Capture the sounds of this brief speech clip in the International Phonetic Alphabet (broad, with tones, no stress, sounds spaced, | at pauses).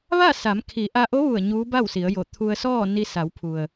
ʋ a˥˨ s a˩˧ m kʰ i˩˧ ʔ a˧ ʔ o˧˥ ʋ u˧˩ ə̯ ɲ uː˧˥ b a˥˨ w s i˩˧ ə̯ j o˧˩ t̪ʰ u˧ ə̯ s ɔː˥˨ n i˧ s a˩˧ w pʰ u˩ ə̯